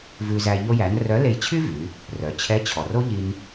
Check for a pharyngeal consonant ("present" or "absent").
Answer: absent